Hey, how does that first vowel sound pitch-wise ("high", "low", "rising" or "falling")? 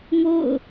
falling